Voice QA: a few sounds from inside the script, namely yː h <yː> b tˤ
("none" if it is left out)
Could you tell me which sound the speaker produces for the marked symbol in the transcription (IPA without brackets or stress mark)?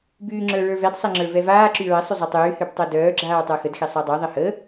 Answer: y